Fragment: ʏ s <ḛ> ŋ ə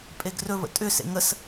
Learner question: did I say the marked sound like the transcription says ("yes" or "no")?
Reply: yes